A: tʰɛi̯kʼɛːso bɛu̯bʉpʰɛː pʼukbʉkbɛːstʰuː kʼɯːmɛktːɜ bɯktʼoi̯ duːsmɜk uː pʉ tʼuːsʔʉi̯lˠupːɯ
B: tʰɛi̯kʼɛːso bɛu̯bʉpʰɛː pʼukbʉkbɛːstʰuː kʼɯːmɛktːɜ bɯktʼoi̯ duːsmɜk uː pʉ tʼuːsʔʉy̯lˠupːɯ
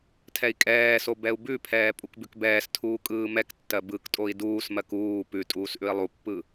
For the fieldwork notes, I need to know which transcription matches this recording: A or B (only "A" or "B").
A